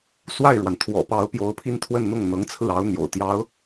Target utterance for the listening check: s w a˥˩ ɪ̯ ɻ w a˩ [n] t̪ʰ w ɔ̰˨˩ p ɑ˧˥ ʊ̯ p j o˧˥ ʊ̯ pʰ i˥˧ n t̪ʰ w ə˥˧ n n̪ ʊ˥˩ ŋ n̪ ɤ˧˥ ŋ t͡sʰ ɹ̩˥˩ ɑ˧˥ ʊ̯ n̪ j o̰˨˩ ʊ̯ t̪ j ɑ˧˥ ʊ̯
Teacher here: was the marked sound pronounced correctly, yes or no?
yes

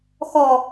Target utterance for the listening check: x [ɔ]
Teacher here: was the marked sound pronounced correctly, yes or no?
yes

